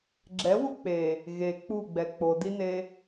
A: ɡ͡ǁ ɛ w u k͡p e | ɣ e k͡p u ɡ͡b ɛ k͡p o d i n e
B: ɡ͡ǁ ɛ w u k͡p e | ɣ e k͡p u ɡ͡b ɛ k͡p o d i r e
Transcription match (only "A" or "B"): A